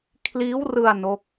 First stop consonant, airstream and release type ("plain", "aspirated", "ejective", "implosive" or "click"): aspirated